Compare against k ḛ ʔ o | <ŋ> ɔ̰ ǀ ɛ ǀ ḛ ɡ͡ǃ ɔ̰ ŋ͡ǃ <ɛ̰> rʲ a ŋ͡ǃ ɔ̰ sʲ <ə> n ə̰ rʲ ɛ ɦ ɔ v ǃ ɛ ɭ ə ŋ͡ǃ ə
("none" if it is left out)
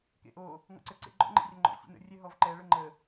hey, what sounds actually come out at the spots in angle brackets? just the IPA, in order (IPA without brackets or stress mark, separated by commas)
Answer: ŋ, ɛ̰, ə̰